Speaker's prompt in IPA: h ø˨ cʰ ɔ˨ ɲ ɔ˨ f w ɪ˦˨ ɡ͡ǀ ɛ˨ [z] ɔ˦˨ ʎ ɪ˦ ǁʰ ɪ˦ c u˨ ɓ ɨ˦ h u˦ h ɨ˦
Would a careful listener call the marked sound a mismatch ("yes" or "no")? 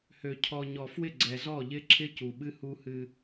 no